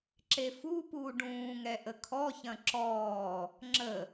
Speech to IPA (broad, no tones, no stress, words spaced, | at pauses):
ǁefupuː ɖũːŋɛ ʔəkʰɔçɐ̃ ǁɔː | ŋ͡ǁə